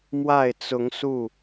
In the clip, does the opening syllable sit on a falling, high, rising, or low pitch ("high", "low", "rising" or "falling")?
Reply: falling